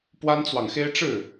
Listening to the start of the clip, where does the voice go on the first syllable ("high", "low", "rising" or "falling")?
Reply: high